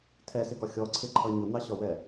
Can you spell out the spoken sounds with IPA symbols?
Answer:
tʰ ɛ s ɪ ɡ ɒ xʲ ɔ ǀʰ ɪ ǃʰ ʌ ɲ ʊ n̪ ɑ ɕ ɒ w ɛ

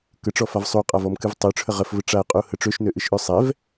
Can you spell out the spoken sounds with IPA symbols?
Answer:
k ə ʈ͡ʂ ɔ f a v sˤ u qʼ a v ɔ m k ɨ v tˤ ø ʈ͡ʂʰ ə ʁ ə f v ə ʈ͡ʂ a ə̯ qʼ u h ə ʈ͡ʂ ø ʃ n ø ʔ ɨ ʃ ʔ ø sˤ ɛ v

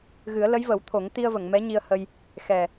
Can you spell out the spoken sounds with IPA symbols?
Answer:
ɣ ɨ˨˩˦ ə̯ l ə˧˥ j v ə˨˩˦ w t̪ʰ o˨˩˦ ŋ t̪ i˧ ə̯ v ə˨˩˨ ŋ m ɛ˧˥ ɲ i˧ ə̯ h ə˧ j | x ɛ˨˩

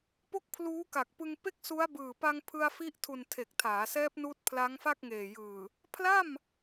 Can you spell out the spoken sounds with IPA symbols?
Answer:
p o˥˩ k̚ pʰ l uː˦˥ k a˨˩ k̚ p ɯ˧ ŋ p e˥˩ k̚ s u˦˥ a̯ b ɯː˨˩ p a˧ ŋ pʰ ɯ˧ a̯ f i˦˥ ʔ tʰ u˨˩ n tʰ e˨˩ k̚ tʰ aː˩˦ s ɛː˦˥ p̚ n uː˦˥ t̚ pʰ l a˦˥ ŋ f a˥˩ k̚ ŋ eː˨˩ j ɯː˨˩ | pʰ l a˥˩ m

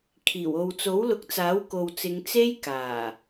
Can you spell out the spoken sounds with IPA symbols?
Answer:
kʰ iː˨˩ w o˨ w t͡s o˨˥ w l ʊ˨˥ k̚ t͡s aː˨˥ w k o˨ w t͡s ɪ˨˧ ŋ t͡s e˥ j k aː˨˩

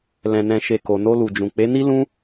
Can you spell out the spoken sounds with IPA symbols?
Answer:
l ɛ̃˨ n ɛ̃˨ ʃ e˨ k o˨ n o˧ l u˨ d͡ʒ ũ˨ k͡p e˨˦ n i˦ l ũ˧

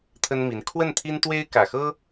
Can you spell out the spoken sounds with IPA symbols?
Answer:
t̪ʰ ə˥ n m i˧˥ n kʰ w ə˥˩ n t̪ʰ i˥ n t̪ w e˥ ɪ̯ k ä˨˩ x ɤ˥

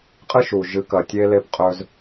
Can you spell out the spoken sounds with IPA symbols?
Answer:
qʼ ɨ˦ ʃ u˨ ʒ ɨ˨˦ k ɐ˨ tʲ e˦ l e˦ p qʼ ɵ˦ z

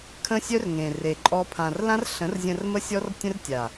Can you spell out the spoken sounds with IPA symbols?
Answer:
kʰ ə̃˦ sʲ œ˦ r ŋ ẽ˨ r e˨ ǃʼ ɔ˧ pʰ ã˨ r l ã˦ r ɬ ə̃˨˦ r zʲ ə̃˧ r m ə˦ sʲ ɔ˦ r tʲ ə̃˦ r tʲ a˨

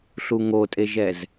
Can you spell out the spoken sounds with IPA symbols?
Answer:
ɬ u ŋ o tʼ e ʒ ɛ z

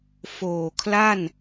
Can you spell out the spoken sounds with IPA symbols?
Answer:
f oː˨˩ kʰ l a˥˩ n

